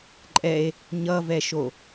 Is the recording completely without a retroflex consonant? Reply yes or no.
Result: yes